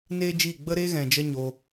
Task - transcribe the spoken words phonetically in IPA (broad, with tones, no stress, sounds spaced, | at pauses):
n eː˦ d͡ʒ iː˦˨ ɡ͡b ə˦ ɾ eː˦ ɣ ɛ̃˨ d͡ʒ ə˦ ɲ o˧